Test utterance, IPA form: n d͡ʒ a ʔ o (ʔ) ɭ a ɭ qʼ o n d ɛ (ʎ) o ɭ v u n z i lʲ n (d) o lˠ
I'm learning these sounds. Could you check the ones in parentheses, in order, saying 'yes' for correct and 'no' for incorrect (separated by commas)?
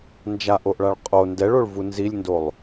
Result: yes, no, yes